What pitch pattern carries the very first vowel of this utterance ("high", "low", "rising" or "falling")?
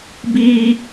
high